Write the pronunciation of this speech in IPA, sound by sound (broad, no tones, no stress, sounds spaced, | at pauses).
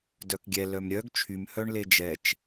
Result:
d œ k ɡʲ ɛ l œ m ɾʲ œ ɡ t͡ʃʰ y m h œ ɳ l e d͡ʒ ɛ t͡ʃ